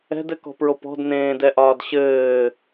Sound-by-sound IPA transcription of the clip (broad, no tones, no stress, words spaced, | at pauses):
ɛ̤dɘkɔ̤pɹop ɔ̤dnẽːdɛʔɒːd ɕɘː